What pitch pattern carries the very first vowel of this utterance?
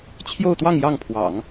falling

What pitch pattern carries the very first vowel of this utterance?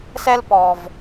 high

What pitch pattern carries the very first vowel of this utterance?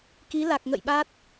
rising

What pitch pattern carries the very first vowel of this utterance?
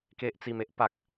low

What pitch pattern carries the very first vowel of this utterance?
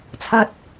high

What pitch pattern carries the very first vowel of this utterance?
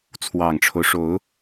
low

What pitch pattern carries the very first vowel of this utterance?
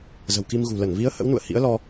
low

